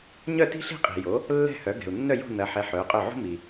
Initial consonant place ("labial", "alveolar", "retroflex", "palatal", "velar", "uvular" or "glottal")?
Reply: palatal